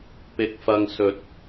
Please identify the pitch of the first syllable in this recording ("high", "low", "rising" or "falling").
low